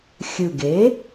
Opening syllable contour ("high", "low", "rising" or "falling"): low